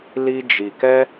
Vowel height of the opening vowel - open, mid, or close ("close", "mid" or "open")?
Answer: close